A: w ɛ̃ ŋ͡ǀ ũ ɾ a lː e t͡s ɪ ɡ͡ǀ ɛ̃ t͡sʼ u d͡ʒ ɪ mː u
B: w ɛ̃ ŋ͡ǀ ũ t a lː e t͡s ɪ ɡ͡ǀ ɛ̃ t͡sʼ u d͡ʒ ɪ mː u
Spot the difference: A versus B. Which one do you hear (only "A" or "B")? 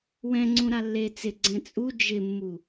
A